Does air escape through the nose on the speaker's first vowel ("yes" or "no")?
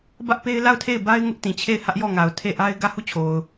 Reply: no